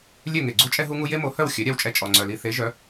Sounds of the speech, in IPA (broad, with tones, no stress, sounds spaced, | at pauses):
lʲ ø˦˨ ŋ e˨ ɡ͡ǀ u˦ t͡ʃʼ ɛ˦ ɦ u˦ ŋ u˦ j e˦ m o˨˦ h œ˦˨ w xʲ œ˨˦ ɾʲ a˧ w t͡ʃʼ ɛ˧ t͡ʃʼ ɔ˨ ŋ͡ǀ œ˨ l i˧ θ e˨˦ ʒ œ˨˦